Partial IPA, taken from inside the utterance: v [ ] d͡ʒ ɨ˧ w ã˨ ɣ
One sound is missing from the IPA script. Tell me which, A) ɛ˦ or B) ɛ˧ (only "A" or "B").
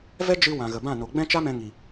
A